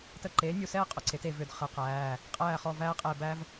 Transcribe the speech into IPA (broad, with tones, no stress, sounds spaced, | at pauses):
t ə˦˨ ǃ eː˨˥ nʲ u˦˨ s ɛː˥ qʼ ʊ˨˥ ǀ e˨˥ t e˦˨ v ʏ˦˨ d χ ə˨˥ q æː˩˧˩ | qʼ æː˦˨ χ ɔ˦˨ v æː˥ qʼ ɛː˦˨ b æ˥ v